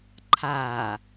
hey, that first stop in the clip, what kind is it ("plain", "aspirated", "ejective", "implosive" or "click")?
click